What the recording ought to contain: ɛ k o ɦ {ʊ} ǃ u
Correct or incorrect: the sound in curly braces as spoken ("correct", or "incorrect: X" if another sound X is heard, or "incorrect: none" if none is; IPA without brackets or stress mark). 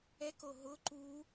correct